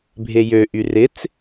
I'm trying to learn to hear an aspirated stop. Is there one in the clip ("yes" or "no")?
no